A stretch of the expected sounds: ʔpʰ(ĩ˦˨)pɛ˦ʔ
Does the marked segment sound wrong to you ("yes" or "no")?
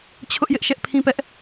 yes